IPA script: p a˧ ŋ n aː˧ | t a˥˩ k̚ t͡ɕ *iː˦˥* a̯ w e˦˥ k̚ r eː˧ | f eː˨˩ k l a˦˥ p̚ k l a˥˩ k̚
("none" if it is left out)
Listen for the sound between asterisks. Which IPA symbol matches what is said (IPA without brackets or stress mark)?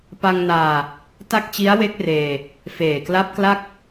i˦˥